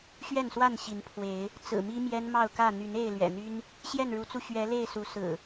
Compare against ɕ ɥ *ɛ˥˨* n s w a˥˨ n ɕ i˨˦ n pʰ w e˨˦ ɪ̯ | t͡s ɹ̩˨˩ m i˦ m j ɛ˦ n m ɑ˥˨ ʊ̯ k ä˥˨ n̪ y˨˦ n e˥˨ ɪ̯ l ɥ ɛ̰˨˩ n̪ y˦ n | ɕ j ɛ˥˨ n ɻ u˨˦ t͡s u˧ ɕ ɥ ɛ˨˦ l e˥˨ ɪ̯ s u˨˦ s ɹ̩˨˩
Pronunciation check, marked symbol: correct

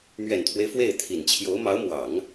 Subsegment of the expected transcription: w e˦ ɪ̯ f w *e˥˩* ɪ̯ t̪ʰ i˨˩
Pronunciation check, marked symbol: correct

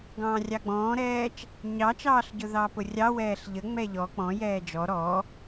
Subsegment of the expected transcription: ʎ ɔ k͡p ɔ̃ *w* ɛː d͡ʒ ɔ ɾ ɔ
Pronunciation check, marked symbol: incorrect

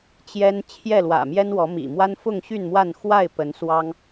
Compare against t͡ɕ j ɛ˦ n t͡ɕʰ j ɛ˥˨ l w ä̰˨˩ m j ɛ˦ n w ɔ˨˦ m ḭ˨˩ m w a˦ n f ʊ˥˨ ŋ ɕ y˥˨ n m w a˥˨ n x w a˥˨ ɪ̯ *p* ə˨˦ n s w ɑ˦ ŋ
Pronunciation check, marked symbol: correct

